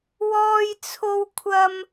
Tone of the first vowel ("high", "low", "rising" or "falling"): high